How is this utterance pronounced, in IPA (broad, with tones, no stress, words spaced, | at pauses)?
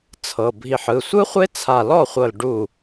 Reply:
t͡sʰɤ˩˧˩ bʱi˧˩ħɯ˩˧˩ sʷɯ˦˥χʷe˦˥ t͡sʰa˧˩lɔ˥˩χʷɤ˧˩l ɖu˧˩